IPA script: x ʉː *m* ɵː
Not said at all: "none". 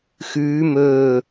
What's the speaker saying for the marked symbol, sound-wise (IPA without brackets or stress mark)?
m